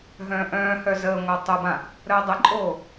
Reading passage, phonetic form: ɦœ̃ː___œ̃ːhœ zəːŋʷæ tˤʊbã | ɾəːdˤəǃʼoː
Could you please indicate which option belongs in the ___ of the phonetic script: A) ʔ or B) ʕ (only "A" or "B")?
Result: A